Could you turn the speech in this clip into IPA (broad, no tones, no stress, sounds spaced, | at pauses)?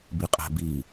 b i qʼ æ̤ b i